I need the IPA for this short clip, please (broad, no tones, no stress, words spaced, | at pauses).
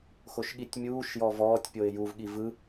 xoʃɠitʲmʲuːʃjɔ vɔːtʲ pʲoɪ̯juvɠi vɯ